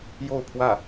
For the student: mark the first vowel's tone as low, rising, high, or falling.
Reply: falling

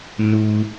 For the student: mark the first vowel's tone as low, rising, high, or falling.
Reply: high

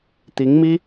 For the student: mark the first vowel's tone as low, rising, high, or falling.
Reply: rising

